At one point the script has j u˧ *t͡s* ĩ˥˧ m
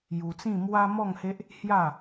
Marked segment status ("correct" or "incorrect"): correct